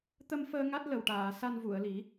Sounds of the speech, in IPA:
t̪ə˧mfəː˧ ŋa˦˥t̚lə˨˩wʈaː˨˩˨sa˧n vu˨˩˨ə̯li˨˩˦

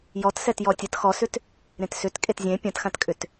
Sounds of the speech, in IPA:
jɔtsɛt jɔtʲɐt xɔsʏt | ɾẽtsʏt kʼetzʲẽ pʲɐ̃txãtkʼʏt

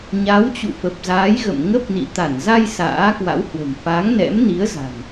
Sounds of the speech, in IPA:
ɲa˨˦wt͡ɕṵ˧˨ fə˨˩p̚zaː˨˦jɣə̰˧˨m ŋə˦˥p̚nḭ˧˨t̪a˧˩n za˧j sa̰ː˧˥kwa̰˧˥whwə̤˨˩m fa˨˦ŋnɛ̰˧˥mni˨˦ə̯za̤˨˩n

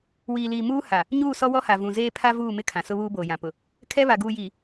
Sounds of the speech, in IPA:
wiː˨liː˨ muː˦ ha˨ | ɲuː˦˨sɔ˦wɔ˦ha˨ vũ˨zeː˦ pʰa˦vuː˦˨mɪ˦ kʰã˨sʊ˦βuː˦ boː˨jã˨ pʊ˨ | kʰɛ˦βa˨ ɡuː˨jiː˨

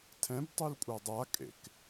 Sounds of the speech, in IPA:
tʰɛ̃btˤul kʷʼadˤakʼḛk

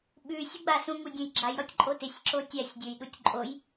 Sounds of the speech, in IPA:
ɓʉ sʲuɡ͡basũ ŋudʲõjɡ͡ǁaj ɾɔtʲǃʼotɪsʲ ǁotʲasʲ dʲojɗutʲǃʼoj

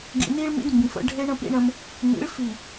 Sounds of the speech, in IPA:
ɡḭ˨ni˦ɭmḭ˦d mbĩ˨fə̰˦ ɖʱe˦ɳə̃˦pḭ˦ɳə̃˦m | nḭ˨˦ɭ fi˨

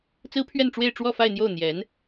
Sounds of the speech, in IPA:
t͡sɹ̩˥pʰɥɛ˥˧nʈ͡ʂwe˥˧ɪ̯ ʈ͡ʂwɔ˥˧fa˥˧ɪ̯n̪jo˥˩ʊ̯ n̪jɛ˧˥n

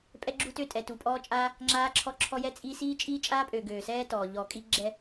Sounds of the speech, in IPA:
pʼɛ˦ɡ͡ǁu˦tø˦ tʼɛ˨tu˨pʼɔː˦t͡ʃʼaː˦ | ŋ͡ǁaː˦ ǁʰɔ˦ǁʰɔ˦jɛ˦t͡sʼi˦ siː˦t͡ʃʼiː˦t͡ʃʼaː˦pʼøː˨ ɡøː˨sɛː˦tɔː˨ ʎɔː˨kʼi˦ ɡ͡ǁɛ˦

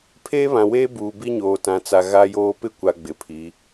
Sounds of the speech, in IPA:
pʰeː˦βã˨weː˦ buː˨bi˦ɲoː˨tã˨ t͡sa˨ ɣa˦joː˦ pɪ˦kʷa˨ ɡ͡bɪ˨pʰi˨˦

